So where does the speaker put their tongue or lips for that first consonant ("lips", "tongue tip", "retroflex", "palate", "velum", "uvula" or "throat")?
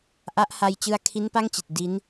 throat